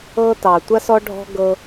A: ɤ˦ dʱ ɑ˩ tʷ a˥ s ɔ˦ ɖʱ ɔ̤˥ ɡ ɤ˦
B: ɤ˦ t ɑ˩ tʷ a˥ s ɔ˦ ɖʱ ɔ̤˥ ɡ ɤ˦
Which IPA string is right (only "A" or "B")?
B